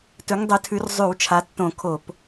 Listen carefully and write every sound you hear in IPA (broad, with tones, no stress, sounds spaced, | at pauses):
t ɵ˨˦ ŋ dˤ ɵ˨˦ tʰ ʉ˨˦ r zˤ ʉ˧˩˧ w t͡ʃʰ a˨˦ tː õ˧˩˧ kʰ o˧˩˧ p